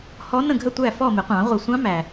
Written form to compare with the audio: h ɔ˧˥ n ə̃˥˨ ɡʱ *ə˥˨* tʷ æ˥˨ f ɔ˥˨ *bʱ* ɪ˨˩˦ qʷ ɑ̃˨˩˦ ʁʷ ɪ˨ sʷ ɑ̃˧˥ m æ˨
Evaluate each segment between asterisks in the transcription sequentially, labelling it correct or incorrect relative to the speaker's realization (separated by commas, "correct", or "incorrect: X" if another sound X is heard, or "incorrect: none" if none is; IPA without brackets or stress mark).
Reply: correct, incorrect: m